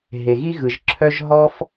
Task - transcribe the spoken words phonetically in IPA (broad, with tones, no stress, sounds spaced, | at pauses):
ɦ e˨ ɣ i˦ ɣ ɯ˨ ʒ ǁʰ œ˦ ʒ ɦ ɔ˦ f